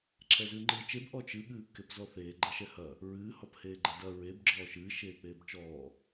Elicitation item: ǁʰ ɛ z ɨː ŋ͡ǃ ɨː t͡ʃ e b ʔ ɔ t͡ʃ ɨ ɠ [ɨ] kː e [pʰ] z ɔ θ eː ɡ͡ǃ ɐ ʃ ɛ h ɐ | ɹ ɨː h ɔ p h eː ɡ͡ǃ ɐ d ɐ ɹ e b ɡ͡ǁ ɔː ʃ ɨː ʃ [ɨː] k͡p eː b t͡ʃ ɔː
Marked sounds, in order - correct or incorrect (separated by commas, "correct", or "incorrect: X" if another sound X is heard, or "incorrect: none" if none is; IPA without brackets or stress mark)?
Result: incorrect: ɨː, incorrect: p, incorrect: eː